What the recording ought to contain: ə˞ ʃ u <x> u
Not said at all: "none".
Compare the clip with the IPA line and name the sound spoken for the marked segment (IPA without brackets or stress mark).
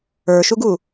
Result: ɡ